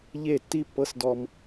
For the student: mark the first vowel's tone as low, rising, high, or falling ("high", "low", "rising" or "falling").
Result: falling